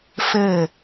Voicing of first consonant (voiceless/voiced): voiceless